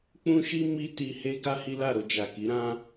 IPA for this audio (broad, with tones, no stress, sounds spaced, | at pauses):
k͡p ũ˧ ʃ i˧ m i˦ t i˧ h e˦ ɡ a˦ h i˦ l a˦˨ ɾ o˧ d͡ʒ a˨ k i˨˦ ɾ ã˦